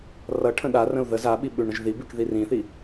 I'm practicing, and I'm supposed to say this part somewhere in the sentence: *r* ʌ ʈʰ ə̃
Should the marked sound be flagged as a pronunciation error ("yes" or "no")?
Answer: no